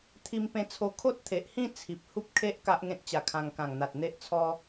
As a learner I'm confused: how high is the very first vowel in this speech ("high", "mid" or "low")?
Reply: high